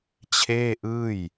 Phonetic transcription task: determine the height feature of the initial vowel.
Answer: mid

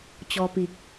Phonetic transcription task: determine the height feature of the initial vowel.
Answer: mid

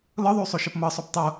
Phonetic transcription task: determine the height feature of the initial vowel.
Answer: mid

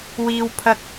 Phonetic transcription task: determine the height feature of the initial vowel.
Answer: high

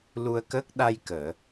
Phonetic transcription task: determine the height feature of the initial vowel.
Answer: high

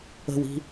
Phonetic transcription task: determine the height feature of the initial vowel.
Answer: mid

